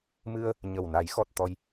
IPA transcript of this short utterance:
mɨ˧ə̯ | ɲə˨˩wna˨˩˦jxɔ˨˩t̚ t̪ɔ˧j

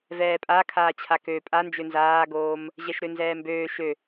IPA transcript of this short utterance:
vɛːpʼa kʰaːt͡ɕʰakø pʼand͡ʒø nzaːɡoːm | ʑɛʃɾønzɛːmbøː ʃø

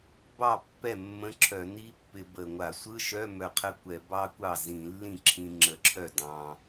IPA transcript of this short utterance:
bɑ˥˩ pːɛ˥˩mːə̃˧˥˧ǁʰœ˧˩˧ni˦˥ pːɪ˧bə˧˩ŋʷa˧˩˧ sʷɯ˧˥˧ʃœ˧˥˧ mœ˧˩qʰə˥˩kʷɛ˧˩˧ bɑ˦˥kʷɑ˥˩ zĩ˧˩˧lːĩ˥˩ǁʰĩ˧ ŋ͡ǁə˧˩ǁʰœ˥˩dɑ̃˧

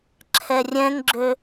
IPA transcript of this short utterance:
ǁʰɛrʲɛ̃ŋɡ͡ǁø

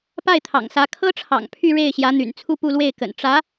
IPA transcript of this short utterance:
pa˥˩ɪ̯t̪ʰɑ̰˨˩ŋsä˧˥ kʰɤ˥ʈ͡ʂʰɑ̰˨˩ŋ pʰy˥˧ɻe˥˩ɪ̯ɕjä˧˥ n̪y̰˨˩n t͡sʰu˥˧pu˥˧lwe˥˩ɪ̯kə̰˨˩n ʈ͡ʂä˧˥

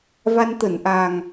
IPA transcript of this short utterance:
va˧n t̪ə˧˩nʔa˨˩ŋ

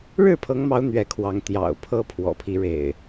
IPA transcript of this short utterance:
ɻɻ̩˥˨pʰɤ˨˦ŋmɑ˨˦ʊ̯ n̪ɥɛ˨˦kʰwɑ˨˦ŋ t̪jɑ̰˨˩ʊ̯ pʰɤ˦pʰwɔ̰˨˩pʰi˦ ɻḛ˨˩ɪ̯

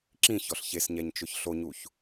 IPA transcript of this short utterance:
ǁĩçɔɬ çesɲɛɲt͡ʃʊç ɬoɲuç

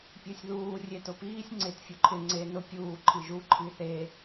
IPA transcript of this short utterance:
pʲə˞sʲðuː rʲetʊpiːsʲ ŋ͡ǀɪt fʲʊǃʰɪ ŋ͡ǀe nʊ pʲuː ǃʰiʒu ǃʰiθe

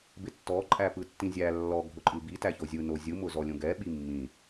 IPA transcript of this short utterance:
bɪtːɔ ǃʼæpɯtːĩzʲæ lːɔ ɡʱʊǃʼɯbi tæçozʲɯ nozʲɯ mʊzɔlʲõɡɛ ɓimːĩ

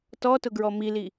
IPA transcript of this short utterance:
tɔtʊɡɹɔ mili

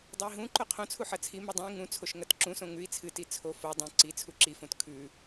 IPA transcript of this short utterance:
dˤɨi̯ɦũǃo qʰõt͡sʰu ħɐt͡sʰimʉ dˤõi̯ ŋũt͡sʰoʃ ŋɐtǁũsõ ŋʉi̯ t͡sʰɨti t͡sʰo fo dˤũ ǀi t͡sʰuǁifõt kʰʉ

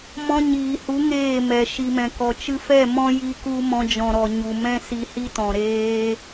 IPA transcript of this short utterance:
mɔ̃˧ɲiː˨hu˨˦ ŋeː˦˨mɛ˨ ʃi˨mɛ̃˨kɔ˨ t͡ʃɨ˧fɛ˦˨ mɔ̃˦ji˧ku˧ mɔ̃˧d͡ʒɔ̃˨ɾɔ˨ ɲu˨mɛ̃˦ si˧hi˦tɔ̃˨ ɾeː˧

